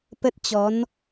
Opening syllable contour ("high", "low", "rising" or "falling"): high